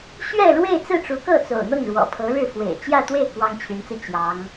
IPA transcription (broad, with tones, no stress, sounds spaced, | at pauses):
ɕ ɥ ɛ˥˧ ɻ w e˥˧ ɪ̯ t͡s ɹ̩˥˩ ʈ͡ʂ u˧˥ k ɤ˥˩ t͡s o̰˨˩ ʊ̯ n̪ ɤ˥˩ ŋ ɻ w ɔ̰˨˩ pʰ ɤ˧˥ ɻ ɻ̩˥˩ f w ḛ˨˩ ɪ̯ t͡ɕ j ä˥˧ t̪ w e˥˩ ɪ̯ k w ɑ˥ ŋ t͡ɕʰ y˧˥ n t͡s ɹ̩˧ t͡ɕ j ɑ˧˥ ŋ